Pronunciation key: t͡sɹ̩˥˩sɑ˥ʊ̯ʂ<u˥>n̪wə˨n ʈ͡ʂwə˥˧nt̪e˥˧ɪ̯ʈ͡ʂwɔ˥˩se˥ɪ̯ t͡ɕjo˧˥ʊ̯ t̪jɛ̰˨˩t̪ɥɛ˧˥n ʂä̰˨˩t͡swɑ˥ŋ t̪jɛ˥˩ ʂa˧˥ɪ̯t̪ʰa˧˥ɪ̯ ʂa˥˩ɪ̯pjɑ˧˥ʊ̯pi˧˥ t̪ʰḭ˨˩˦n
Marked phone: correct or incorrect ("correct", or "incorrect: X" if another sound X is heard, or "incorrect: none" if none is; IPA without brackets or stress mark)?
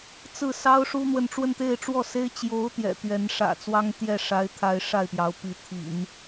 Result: correct